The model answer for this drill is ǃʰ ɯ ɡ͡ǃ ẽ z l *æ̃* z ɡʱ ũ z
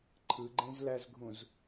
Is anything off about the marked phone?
yes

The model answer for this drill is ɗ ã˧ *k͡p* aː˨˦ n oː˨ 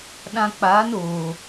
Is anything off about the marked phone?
no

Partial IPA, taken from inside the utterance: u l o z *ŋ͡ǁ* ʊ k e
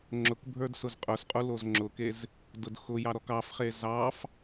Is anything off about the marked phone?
no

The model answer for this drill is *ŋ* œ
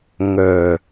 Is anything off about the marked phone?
no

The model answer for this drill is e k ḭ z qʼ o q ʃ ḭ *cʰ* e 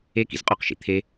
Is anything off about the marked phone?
yes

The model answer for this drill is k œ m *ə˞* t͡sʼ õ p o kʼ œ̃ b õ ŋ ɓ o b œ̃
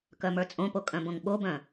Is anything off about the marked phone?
no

